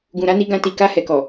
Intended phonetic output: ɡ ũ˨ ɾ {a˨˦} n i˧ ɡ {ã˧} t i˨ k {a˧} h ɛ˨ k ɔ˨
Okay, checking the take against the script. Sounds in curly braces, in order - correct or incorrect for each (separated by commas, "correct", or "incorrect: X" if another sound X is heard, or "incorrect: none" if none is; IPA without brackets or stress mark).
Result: correct, correct, correct